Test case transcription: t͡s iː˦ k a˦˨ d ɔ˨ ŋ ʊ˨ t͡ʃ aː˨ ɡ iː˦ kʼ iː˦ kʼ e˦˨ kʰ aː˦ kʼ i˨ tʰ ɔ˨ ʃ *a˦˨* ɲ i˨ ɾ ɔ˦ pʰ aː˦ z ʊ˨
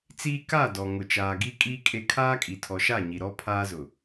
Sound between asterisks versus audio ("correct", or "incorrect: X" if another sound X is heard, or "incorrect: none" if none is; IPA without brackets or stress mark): correct